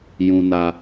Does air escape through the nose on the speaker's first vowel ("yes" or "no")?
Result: yes